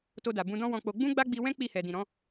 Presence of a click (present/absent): absent